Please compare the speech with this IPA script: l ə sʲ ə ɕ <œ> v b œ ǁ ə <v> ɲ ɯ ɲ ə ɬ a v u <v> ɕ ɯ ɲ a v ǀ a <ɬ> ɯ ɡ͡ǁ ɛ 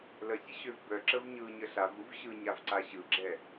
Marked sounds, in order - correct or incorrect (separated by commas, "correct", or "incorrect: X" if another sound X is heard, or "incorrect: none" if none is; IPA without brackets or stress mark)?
incorrect: ø, correct, correct, incorrect: ɕ